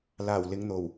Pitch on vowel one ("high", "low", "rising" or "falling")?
low